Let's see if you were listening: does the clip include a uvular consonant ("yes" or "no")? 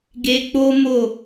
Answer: no